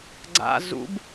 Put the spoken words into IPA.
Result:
ɡ͡ǀ a̰ z ṵ b

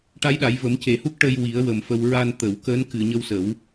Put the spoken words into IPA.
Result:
ʈ a˧˥ j ɗ a˨˩˦ j v ə˨˩˦ m c e˨˩ h u˦˥ k̚ ʈ ə˧ j w i˨˩˦ ə̯ w ə˨˩ m f ə˧ w ɹ a˧ n t̪ ə˨˩˨ w k əː˧˥ n k ɨ˨˩˨ ɲ ə˧ w s ə˨˩˦ w

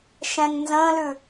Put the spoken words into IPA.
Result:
ʃ ɛ̃ ŋ n z ə̃ː l ʉ

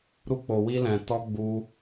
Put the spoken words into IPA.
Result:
ɾ u˧ k͡p o˨ w i˧ l ɛ̃˨ t ɔ˧ ɡ͡b u˧

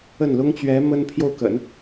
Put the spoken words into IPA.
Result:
ə˥˩ n l ʊ˥ ŋ t͡ɕ ɥ ɛ˧˥ m ə˥ n pʰ j o˥˩ ʊ̯ k ə̰˨˩˦ n

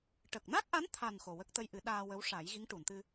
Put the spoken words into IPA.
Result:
ʈ ə˨˩ k̚ n a˦˥ k̚ ʔ a˧˥ n t̪ʰ a˨˩ n x o˨˩ w ə˦˥ k̚ t̪ ə˧ j ʔ ɨ˨˩˦ ɗ aː˧ w ə˧˥ w ʂ a˨˩˦ j ɣ i˧˥ ŋ ʈ u˨˩˨ n t̪ ɨ˧

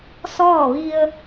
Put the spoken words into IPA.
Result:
s ɔː˥˨ ʋ i˧ ə̯

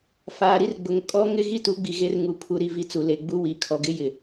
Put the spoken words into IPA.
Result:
f aː˨ ɾ i˦ r ɡ͡b ʊ˨ ŋ kʼ ɔ˦ ŋ ɪ˦ ɣ i˦ t u˨˦ ɡ͡b i˨ ɣ e˦ r ŋ u˨ pʰ u˨ ɾ i˨ v i˨ t͡s u˨ l e˨ ɡ͡b u˦ w i˨˦ kʰ ɔ˨ ɡ ɪ˦ j ɪ˨

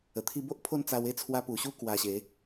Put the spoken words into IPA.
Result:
ə˨˩ t̪ʰ i˦ b o˦ ʔ pʰ o˥˧ n t͡s a˧ w e˥˧ t͡sʰ w a˧ p u˨˩ ɕ u˦ k w a˧ ɕ e˨˦

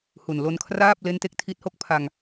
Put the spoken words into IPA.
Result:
h u˨˩ n l o˧ n kʰ r aː˥˩ p̚ l e˦˥ n t e˦˥ k̚ tʰ i˦˥ t̚ h o˥˩ k̚ pʰ a˧ ŋ

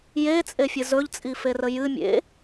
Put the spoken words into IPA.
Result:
j e t͡sʼ e fʲ ɨ z ɵ ʎ t͡sʼ i f e r ə j ɨ mʲ ḛ

